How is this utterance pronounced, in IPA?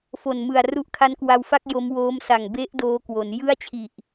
f o˨˩ n m ɯ˨˩ a̯ r u˦˥ ʔ kʰ a˦˥ n k w a˧ w f a˥˩ k̚ j o˦˥ m w oː˦˥ m s a˨˩ ŋ b e˦˥ ʔ d oː˦˥ k w o˩˦ n j ɯ˥˩ a̯ t͡ɕʰ i˨˩ ʔ

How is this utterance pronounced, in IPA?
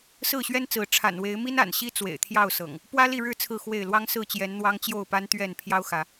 s ɹ̩˥˨ ɕ ɥ ɛ˦ n t͡s ɹ̩˨˦ ʈ͡ʂʰ a̰˨˩ n w e˨˦ ɪ̯ m i˦ n a̰˨˩ n ɕ i˦ t͡s w ḛ˨˩ ɪ̯ t̪ʰ j ɑ˥˨ ʊ̯ s ɤ̰˨˩ ŋ | p w ä˦ l i˥˨ ɻ ɻ̩˥˨ t͡sʰ ɹ̩˥˨ x w e˥˨ ɪ̯ l w ɑ˦ ŋ s ɹ̩˥˨ t͡ɕ j ɛ˨˦ n n̪ w ɑ˦ ŋ t͡ɕ j o˥˨ ʊ̯ p a˦ n t̪ ɥ ɛ˥˨ n pʰ j ɑ˦ ʊ̯ x ä˨˦

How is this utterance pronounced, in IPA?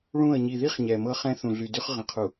ɭ ũ˦˨ ə̯ ɲ i˨ ð i˦ χ ɲ ɛ˨ m ɤ˦ χ ɛ̃˦ θ ũ˨ ɮ y˨ d y˦ χ ʁ ə̃˨ qʰ u˨

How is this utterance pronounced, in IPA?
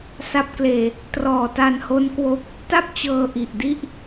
s a˦˥ p̚ k l eː˧ | t r ɔː˨˩ t a˧ n h o˦˥ n k w o˦˥ k̚ | t a˥˩ p̚ t͡ɕ ɤː˧ ʔ i˨˩ ʔ d i˥˩ ʔ

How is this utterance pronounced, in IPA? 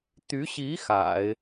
t̪ y˧˥ ɕ i˧˥ x a̰˨˩˦ ɪ̯

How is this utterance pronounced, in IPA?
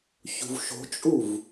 ç ṳ v ʃ o̤ t͡ʃʼ u v

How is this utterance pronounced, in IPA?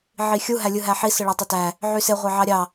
ʕ i xʲ u ɦ æ lʲ ɯ ɦ æ ħ i s ɯ ɭ ɑ tˤ o t æ | ʕ y s e ʁʷ ɑ ʕ ɑ ɾʲ ɑ

